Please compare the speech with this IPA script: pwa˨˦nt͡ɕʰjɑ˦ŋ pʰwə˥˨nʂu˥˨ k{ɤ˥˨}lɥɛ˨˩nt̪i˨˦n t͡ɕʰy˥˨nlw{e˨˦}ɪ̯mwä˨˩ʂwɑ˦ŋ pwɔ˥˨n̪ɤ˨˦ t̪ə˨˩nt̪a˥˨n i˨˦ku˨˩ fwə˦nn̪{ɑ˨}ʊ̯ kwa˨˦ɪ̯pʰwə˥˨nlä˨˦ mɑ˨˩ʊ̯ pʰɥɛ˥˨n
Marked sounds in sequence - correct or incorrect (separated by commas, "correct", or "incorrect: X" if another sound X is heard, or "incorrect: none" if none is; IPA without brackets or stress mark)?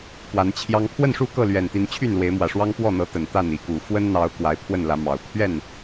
correct, correct, incorrect: ɑ˨˦